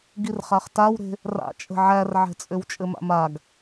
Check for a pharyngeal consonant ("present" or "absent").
present